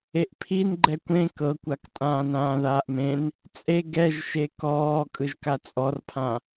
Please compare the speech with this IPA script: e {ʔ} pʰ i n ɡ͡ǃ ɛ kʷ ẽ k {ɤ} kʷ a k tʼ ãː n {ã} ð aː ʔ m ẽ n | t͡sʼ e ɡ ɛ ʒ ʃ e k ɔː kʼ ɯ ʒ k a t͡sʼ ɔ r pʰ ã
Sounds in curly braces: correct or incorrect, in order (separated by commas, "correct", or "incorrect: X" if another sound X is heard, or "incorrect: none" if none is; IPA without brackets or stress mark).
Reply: correct, correct, incorrect: ãː